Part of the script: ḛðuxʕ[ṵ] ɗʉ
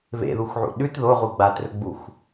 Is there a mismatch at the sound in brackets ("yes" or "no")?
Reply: no